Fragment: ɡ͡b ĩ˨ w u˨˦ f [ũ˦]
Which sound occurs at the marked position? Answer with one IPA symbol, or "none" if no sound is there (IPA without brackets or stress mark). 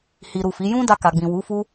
u˦